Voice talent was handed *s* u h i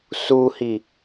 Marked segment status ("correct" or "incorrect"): correct